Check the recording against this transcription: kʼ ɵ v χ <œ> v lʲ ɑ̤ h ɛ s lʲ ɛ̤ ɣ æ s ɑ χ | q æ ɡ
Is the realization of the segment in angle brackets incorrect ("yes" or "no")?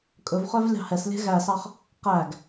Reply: no